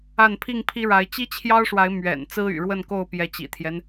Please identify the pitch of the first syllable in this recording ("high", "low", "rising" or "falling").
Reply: falling